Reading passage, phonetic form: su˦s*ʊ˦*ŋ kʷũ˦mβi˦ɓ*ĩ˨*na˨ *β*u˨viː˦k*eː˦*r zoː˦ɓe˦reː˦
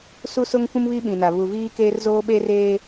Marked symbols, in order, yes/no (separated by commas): yes, yes, yes, yes